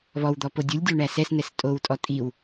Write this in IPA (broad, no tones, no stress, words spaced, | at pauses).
βɔwd̪ɔ podʲulʲdʲo ɳæsɛsnɛs tʼowtʼɔ tʼiw